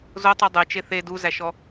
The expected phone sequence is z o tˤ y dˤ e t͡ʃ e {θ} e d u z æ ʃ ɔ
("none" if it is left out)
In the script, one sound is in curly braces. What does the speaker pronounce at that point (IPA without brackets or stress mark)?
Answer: θ